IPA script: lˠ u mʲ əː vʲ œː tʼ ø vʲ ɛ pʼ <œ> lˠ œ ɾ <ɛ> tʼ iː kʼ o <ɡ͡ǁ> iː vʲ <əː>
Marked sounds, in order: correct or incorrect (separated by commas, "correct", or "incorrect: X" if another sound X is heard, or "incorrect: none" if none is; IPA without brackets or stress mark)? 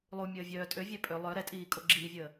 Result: incorrect: ø, correct, correct, correct